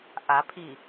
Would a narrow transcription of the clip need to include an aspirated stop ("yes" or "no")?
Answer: yes